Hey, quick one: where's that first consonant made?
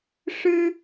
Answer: retroflex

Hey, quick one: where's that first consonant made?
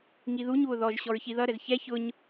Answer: velum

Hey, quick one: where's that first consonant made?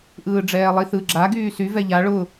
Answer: throat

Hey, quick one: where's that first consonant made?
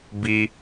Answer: lips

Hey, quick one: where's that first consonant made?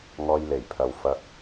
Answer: velum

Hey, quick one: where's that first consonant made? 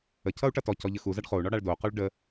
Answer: palate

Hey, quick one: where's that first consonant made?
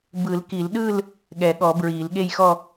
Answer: lips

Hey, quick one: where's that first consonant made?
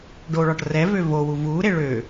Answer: retroflex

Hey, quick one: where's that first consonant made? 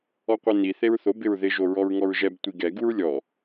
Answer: uvula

